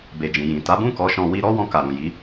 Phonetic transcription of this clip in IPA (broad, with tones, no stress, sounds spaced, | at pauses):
b e˨ d͡ʒ ĩ˨ j ĩ˨ t a˨˦ b ũ˦˨ k ɔ˨˦ ʃ ɔ̃˧ w i˧ ɾ ɔ˦ w ɔ̃˧ k a˨ ɾ ũ˨ j i˨˦